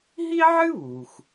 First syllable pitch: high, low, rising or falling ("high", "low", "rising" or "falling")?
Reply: high